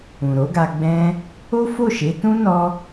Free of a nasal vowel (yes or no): no